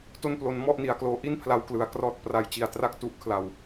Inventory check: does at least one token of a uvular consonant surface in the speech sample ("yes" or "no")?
no